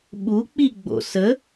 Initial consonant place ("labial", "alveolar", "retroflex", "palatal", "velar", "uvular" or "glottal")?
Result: labial